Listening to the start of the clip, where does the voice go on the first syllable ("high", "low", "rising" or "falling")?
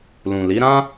low